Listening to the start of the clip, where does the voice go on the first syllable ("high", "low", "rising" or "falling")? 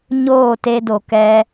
falling